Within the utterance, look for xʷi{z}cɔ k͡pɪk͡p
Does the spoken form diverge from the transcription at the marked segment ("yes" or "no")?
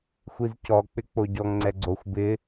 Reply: no